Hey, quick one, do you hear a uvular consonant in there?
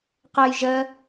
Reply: yes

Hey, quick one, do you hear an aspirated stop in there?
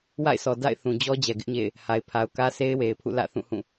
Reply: yes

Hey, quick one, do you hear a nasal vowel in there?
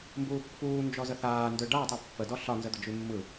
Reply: no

